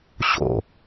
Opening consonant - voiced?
no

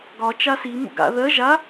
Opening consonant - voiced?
yes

